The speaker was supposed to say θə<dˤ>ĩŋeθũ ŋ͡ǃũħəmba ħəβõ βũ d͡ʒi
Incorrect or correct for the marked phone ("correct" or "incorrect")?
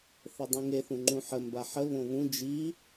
correct